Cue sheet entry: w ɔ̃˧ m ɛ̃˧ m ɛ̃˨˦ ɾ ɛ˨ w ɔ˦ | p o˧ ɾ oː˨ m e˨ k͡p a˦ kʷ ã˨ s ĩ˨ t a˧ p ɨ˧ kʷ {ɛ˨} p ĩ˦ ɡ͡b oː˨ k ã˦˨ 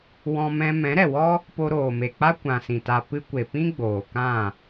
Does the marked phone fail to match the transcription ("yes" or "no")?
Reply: yes